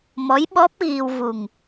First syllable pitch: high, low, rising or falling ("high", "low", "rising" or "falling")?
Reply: rising